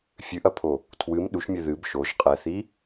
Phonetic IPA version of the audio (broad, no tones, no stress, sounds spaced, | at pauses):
fʲ ɨ ʔ ɐ pʰ o | tʰ w ɨ m ɗ u ʃ mʲ ɘ ð ɨ b ʃ o ʒ qʼ ɛ θ i